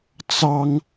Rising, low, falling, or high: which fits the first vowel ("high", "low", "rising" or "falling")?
high